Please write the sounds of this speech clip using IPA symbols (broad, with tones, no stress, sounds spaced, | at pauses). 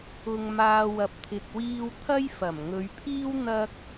ʊ˨ ŋ m aː˨ w ɐ˨ p̚ t̪ʰ ɪ˨ k̚ w iː˧ w t̪ʰ ɐ˥ j f ɐ˨˩ m ŋ ɵ˨˧ ɥ pʰ iː˥ w n̪ ɐ˧ k̚